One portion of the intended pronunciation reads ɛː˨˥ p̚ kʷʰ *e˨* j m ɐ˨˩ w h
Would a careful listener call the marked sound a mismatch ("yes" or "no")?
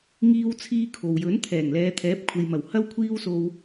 no